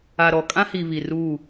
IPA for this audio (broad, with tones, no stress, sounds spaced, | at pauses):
a˨ ɾ ɔ˨ kʼ ã˦ h i˨ β i˨ r uː˦˨